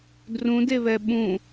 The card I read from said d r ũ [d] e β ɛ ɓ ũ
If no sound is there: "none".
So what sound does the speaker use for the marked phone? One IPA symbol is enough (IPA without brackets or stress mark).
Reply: d